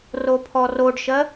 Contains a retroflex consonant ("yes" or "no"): yes